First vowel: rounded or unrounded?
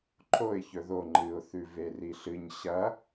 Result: rounded